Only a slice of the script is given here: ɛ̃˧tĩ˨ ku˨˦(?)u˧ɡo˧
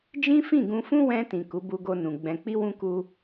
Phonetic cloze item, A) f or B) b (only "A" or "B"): B